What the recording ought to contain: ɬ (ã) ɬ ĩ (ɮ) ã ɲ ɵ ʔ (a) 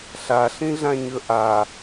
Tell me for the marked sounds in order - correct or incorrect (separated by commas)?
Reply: incorrect, correct, correct